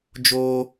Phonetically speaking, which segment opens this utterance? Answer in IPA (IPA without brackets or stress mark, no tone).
d͡ʒ